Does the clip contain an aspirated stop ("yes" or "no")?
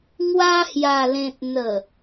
no